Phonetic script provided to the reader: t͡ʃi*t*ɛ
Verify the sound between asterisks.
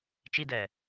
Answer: incorrect: d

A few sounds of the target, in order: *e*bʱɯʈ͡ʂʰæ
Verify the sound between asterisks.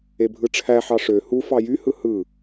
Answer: correct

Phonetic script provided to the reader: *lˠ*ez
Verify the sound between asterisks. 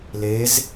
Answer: incorrect: l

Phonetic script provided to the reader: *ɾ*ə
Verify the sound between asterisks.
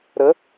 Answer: correct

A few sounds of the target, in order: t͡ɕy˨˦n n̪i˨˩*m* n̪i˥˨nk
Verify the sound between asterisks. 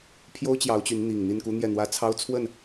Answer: incorrect: ŋ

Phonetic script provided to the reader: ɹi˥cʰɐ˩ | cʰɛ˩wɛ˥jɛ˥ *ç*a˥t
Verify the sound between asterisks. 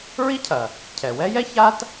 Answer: correct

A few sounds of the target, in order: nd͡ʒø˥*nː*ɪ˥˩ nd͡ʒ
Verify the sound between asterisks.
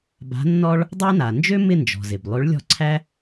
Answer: incorrect: m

